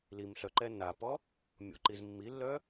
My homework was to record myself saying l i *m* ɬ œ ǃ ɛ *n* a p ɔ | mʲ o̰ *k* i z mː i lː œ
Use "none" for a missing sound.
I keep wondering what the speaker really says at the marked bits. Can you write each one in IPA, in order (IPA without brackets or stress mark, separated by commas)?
m, n, ǃ